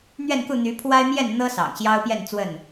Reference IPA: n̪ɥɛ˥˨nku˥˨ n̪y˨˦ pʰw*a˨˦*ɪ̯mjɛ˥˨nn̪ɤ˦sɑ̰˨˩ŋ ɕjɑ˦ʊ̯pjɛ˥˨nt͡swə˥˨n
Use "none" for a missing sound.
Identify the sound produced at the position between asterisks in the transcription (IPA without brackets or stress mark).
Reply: a˦